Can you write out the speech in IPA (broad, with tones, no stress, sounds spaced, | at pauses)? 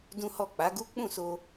d ũ˦ h ɔ˦˨ k͡p a˨˦ ɡ u˦ k͡p ũ˦˨ s o˧